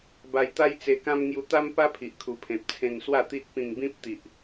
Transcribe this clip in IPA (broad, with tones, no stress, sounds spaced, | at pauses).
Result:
b a˧ j t̪ a˦ j t͡s e˧ k ã˦ m ŋ j u˧ t̪ a˦ m p a˦ pʰ i˨ ʔ kʰ u˨˩ pʰ ẽ˨ p̚ t͡sʰ ẽ˧ n s w a˥˧ t̪ i˦ t̚ p ĩ˧ ŋ b ĩ˦ p̚ t̪ i˨ ʔ